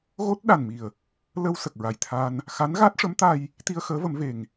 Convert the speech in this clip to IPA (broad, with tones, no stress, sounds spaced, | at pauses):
ɣ o˦˥ t̚ ɗ a˨˩ n m i˨˩ ə̯ | l ə˧ w s ə˨˩ k̚ ɹ a˨˩ j t̪ʰ aː˧ n | x a˧˥ n ɣ a˦˥ t̚ ʂ ə˧˥ m t̪ a˧ j | t̪ i˧ ə̯ x əː˧˥ v ə˨˩˦ m v e˨˩ ŋ